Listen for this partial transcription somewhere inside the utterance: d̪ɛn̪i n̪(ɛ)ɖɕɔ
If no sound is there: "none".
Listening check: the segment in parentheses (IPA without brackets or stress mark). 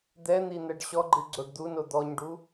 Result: ɛ